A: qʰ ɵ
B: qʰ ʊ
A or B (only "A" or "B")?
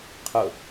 B